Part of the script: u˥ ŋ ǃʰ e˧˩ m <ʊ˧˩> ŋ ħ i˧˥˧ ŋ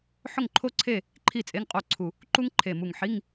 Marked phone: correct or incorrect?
incorrect